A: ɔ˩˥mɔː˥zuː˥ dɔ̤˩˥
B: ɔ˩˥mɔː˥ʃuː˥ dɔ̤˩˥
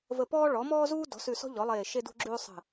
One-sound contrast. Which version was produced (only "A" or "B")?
A